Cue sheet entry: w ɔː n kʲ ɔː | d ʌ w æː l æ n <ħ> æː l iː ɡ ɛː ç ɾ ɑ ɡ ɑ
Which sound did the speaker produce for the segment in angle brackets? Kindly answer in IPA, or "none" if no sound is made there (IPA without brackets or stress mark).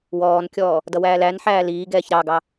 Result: ħ